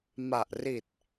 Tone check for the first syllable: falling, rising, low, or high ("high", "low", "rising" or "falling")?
low